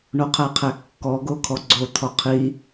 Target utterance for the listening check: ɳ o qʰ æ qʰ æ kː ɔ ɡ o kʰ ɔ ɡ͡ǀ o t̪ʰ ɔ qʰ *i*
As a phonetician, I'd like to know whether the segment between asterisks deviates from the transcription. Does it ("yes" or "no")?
no